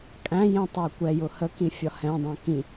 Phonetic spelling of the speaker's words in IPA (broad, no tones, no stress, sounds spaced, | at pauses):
kʼ æ̃ j ĩ tˤ ʊ j kʷ ɛ j ʊ h ə k ĩ fʲ ɒ h ɛ̃ dˤ æ̃ k ĩ